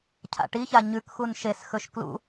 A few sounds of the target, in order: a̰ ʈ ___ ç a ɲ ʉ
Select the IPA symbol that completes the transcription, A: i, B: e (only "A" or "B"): A